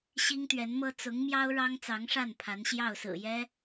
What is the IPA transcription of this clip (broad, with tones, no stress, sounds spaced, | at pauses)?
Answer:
ɕ i˥ ŋ t̪ ɥ ɛ˧˥ n m ɤ˥ t͡s ʊ˧˥ ŋ m j ɑ˥ ʊ̯ ɻ ɑ˥ ŋ t͡s ɑ˧˥ ŋ ʂ a˥˩ n pʰ a˧˥ n ɕ j ɑ˥˩ ʊ̯ s ɹ̩˨˩ j ɛ˥